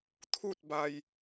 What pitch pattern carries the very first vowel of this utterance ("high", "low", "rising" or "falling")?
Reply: falling